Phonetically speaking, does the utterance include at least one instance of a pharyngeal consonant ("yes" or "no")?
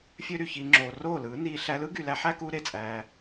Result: yes